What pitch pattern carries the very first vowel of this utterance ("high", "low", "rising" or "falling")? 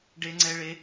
high